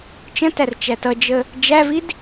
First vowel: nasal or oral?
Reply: nasal